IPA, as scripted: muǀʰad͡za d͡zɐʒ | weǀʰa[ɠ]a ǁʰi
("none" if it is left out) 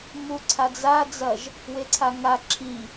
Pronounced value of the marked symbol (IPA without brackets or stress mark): ŋ